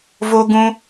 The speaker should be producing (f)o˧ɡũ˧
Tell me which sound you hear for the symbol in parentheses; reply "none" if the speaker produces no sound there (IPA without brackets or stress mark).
v